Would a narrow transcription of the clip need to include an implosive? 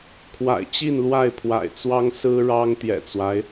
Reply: no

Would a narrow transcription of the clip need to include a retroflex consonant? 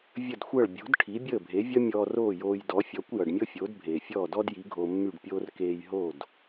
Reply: yes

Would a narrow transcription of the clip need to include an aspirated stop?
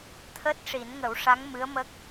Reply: yes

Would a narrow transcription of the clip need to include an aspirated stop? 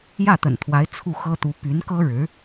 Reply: yes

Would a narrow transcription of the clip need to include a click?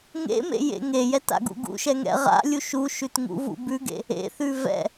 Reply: no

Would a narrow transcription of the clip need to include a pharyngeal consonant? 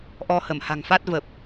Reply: no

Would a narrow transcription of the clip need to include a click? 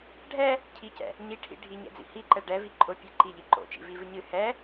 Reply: yes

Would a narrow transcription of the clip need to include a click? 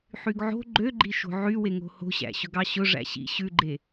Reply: yes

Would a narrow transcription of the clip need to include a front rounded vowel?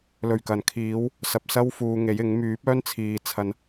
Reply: yes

